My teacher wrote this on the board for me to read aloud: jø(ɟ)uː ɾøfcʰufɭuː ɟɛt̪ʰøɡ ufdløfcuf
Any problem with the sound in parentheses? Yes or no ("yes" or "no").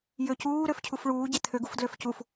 yes